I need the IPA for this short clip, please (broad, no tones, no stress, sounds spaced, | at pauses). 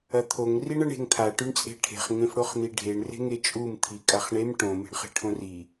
ɐ t̪ʰ o ŋ r i ɳ ɐ ɳ e̤ ŋ t̪ʰ a ʈ ʉ ɳ t͡sʼ e̤ ʈʰ e̤ χ ŋ ẽ f ɽ o χ n̪ i ɖʱ e ɳ r e̤ ŋ e t͡ʃʼ u m t̪ʰ i kʼ a χ ɳ e m ʈ õ m e̤ ɳ χ e̤ ʈʰ õ r i